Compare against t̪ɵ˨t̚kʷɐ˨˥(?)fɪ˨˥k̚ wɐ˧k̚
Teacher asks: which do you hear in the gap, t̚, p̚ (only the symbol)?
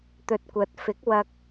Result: t̚